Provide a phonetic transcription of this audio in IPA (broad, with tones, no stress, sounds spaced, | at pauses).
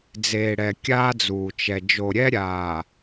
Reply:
d͡z eː˨ ɽ ɛ˨ kʲ aː˦ d͡z uː˨ t͡ʃ ɛ˨ d͡ʒ o˨ ɾʲ ɛ˦ ɾʲ aː˨